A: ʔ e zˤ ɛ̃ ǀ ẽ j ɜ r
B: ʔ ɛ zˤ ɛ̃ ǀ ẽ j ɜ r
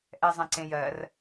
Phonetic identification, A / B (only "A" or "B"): B